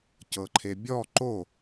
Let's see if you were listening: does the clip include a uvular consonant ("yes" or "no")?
no